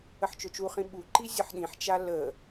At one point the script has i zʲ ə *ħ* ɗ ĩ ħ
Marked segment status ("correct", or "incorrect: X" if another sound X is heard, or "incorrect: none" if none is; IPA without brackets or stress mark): correct